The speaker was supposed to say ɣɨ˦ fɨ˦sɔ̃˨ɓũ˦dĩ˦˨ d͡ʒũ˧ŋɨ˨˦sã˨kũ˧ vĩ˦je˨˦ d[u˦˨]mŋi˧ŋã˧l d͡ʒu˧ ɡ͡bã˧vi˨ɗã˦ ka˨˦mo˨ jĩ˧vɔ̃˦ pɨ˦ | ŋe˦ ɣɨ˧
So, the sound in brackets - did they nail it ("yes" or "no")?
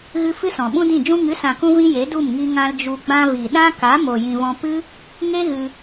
yes